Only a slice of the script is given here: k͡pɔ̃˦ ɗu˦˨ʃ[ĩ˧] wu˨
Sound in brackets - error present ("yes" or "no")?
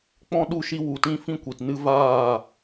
yes